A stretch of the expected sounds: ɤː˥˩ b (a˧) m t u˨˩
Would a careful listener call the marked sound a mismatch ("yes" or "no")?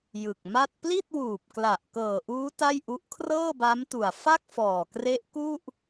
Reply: yes